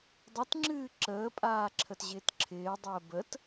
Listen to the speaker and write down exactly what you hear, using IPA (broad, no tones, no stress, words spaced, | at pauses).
dˤətŋ͡ǁɨː ǁəːpʼaːǁʰətʑɪːt ǁʰɪːdˤəː bət